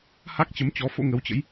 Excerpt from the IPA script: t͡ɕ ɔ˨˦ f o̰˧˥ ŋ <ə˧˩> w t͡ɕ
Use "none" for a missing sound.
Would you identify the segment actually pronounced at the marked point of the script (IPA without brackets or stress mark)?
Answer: ə˨˦